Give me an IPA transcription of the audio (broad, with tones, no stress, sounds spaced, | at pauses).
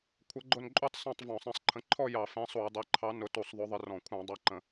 kʷʰ ə˨˥ ɡ͡ǃ ʊ˥˨ n ǃʼ u˥˨ tˤ s ɑ̃˥˨ tˤ v ɔ̃˧˩˧ sˤ ɛ̃˨˥ sˤ ǃʰ ə̃˨˥ ǃʰ ɔ˥˨ j ɑ˧˩˧ f ɛ̃˨˥ sˤ u˧˩˧ j dˤ ɜ˨˥ ǃʰ ɑ˨˥ n ʊ˨˥ t u˧˩˧ sˤ ðˤ ʊ˨˥ ðˤ ɪ˨˥ r ɔ̃˧˩˧ kʷʰ ɑ̃˧˩˧ dˤ ɑ˨˥ ǃ ə̃˧˩˧